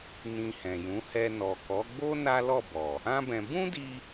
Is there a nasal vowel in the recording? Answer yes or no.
yes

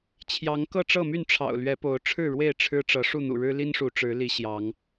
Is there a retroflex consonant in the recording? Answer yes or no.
yes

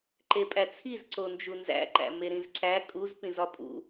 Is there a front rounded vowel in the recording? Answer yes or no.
no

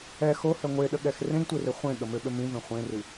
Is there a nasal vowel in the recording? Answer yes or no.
yes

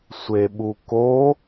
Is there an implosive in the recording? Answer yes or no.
yes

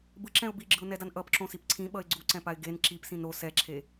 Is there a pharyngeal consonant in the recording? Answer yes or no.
no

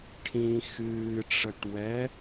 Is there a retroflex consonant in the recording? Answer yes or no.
yes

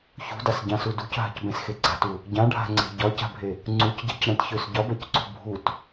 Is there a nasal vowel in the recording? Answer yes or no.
yes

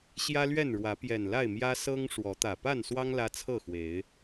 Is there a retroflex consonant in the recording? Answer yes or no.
yes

